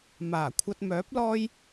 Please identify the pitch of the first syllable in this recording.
low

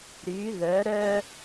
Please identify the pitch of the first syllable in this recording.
rising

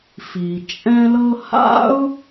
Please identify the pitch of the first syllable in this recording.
low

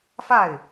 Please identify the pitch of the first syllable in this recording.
falling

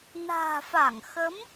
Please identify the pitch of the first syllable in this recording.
low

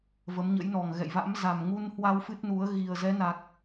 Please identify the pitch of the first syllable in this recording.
rising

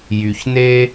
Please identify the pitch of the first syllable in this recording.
low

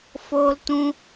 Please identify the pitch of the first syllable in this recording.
high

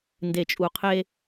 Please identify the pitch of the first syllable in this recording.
low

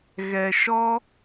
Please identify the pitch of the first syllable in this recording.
low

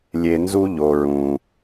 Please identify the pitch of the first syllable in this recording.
low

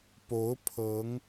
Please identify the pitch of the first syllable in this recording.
rising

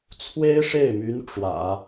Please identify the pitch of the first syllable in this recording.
high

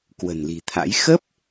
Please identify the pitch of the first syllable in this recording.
low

